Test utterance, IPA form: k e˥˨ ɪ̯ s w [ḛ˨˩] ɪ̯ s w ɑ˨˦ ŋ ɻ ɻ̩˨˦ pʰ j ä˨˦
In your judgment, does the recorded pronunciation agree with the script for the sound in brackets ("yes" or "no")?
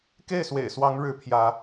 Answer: yes